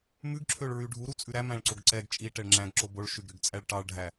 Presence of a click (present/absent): present